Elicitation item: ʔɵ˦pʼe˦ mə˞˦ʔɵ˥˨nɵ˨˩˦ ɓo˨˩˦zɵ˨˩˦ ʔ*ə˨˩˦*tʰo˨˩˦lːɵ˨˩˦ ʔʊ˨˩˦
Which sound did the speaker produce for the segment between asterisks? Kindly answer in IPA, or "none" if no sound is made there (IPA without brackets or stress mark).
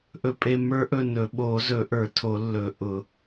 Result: ə˞˨˩˦